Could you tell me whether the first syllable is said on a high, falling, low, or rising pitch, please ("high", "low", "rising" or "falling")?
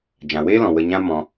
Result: low